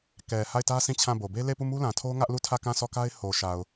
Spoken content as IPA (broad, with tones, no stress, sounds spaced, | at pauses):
k ɛ˨ h a˦˨ ɪ̯ t ä˦ s ĩ˦˨ t͡ɕʰ ã˦˨ b o˨ b e˦ l e˦˨ p u˦˨ m u˦ l ã˨ tʰ o˦ ŋ ä˦ ʔ l u˦˨ tʰ ä˦˨ k ã˦˨ sʰ ɔ˦˨ k a˦ ɪ̯ h o˨ ʃ a˨ ʊ̯